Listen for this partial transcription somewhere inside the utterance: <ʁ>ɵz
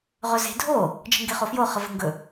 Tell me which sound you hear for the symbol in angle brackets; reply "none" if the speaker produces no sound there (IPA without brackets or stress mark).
ʁ